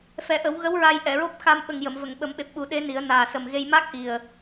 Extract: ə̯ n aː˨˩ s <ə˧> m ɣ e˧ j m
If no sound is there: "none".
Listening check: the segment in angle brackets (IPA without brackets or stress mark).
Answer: ə˨˩